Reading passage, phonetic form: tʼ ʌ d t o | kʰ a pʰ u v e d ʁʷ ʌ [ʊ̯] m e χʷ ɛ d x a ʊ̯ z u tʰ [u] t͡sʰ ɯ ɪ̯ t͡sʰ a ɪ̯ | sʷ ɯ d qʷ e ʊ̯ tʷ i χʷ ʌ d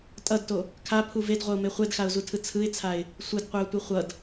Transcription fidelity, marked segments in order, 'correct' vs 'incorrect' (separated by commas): correct, incorrect